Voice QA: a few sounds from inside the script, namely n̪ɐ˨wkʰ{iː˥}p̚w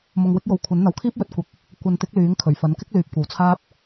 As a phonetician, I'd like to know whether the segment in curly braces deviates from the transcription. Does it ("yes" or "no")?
no